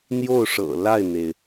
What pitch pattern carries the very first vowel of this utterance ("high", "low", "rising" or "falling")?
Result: falling